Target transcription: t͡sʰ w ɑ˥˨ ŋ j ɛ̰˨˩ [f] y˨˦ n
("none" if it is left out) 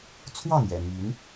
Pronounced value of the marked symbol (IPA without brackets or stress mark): m